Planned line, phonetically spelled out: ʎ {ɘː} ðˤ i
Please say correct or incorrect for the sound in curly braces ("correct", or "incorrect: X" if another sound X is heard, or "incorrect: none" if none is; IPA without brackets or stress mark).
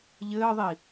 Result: correct